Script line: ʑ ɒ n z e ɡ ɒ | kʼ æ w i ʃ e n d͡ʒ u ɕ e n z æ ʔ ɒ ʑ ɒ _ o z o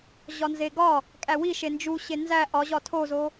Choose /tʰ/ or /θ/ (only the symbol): tʰ